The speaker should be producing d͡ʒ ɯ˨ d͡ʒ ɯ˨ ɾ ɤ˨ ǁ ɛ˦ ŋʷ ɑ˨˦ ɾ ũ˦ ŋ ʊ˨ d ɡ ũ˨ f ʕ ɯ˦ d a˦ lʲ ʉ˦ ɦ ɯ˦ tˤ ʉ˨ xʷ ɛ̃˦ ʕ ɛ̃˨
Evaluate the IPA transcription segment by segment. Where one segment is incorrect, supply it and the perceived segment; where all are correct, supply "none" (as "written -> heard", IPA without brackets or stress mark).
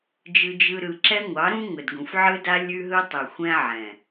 ɤ˨ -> ɯ˨